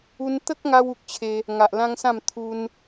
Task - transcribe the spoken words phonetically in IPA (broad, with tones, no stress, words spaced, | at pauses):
u˧nt̪ə˦k̚ŋa˧w u˨k̚t͡ɕʰe˧ | ŋa˨ʔlã˦ŋsã˥˧m t̪ʰu˧n